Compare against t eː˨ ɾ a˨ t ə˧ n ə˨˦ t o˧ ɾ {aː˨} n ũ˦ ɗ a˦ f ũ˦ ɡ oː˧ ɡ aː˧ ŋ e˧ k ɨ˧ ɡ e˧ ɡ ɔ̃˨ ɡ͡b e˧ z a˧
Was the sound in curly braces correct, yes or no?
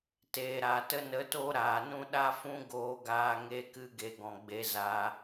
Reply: yes